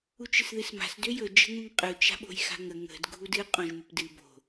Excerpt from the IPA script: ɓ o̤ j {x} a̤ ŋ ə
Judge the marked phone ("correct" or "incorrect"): correct